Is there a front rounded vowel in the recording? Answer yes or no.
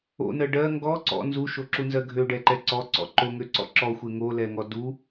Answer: yes